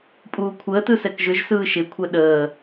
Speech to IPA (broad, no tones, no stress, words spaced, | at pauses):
pʼuːkʷʰəːtɯ sɛkʒʏʒsɯː ʃɪkʷʰɛ ɗəː